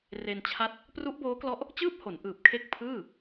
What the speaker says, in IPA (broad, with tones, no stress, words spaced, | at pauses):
re˧nt͡ɕʰa˦˥t̚ | pru˦˥ʔboː˦˥klɔ˦˥ʔ | t͡ɕɯː˥˩p̚ho˩˦n ʔɯː˨˩p̚kʰe˦˥k̚ pʰɯː˥˩